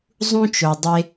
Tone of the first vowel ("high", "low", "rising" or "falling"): high